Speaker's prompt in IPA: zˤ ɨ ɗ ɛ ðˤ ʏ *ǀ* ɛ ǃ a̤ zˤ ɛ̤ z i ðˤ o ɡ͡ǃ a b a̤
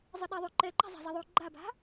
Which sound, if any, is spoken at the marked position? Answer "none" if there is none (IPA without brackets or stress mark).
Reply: ǃ